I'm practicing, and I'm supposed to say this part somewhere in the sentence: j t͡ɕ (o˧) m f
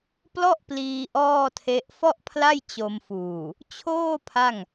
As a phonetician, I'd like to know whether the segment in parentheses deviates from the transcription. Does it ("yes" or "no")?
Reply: no